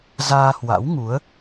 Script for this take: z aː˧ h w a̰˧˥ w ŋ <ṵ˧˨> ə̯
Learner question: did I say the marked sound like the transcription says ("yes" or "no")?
no